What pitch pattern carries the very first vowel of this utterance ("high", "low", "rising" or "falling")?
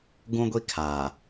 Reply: high